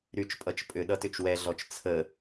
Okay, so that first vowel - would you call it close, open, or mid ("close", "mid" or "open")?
close